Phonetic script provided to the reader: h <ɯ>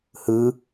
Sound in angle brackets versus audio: correct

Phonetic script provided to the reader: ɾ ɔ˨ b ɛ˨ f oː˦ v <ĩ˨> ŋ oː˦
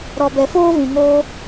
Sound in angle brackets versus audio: correct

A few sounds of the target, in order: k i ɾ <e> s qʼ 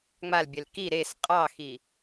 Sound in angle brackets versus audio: correct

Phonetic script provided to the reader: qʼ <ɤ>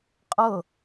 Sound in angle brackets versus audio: correct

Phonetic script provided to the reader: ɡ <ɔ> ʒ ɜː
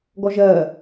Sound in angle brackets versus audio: correct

